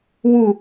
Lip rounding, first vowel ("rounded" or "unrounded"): rounded